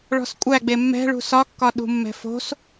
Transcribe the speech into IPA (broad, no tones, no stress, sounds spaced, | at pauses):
ɭ ɔ̤ s kʷʼ æ ɡ͡b e mː ɛ̤ ɭ ṳ s ɒ kː ɒ ɗ ṳ mː ɛ̤ f o̤ s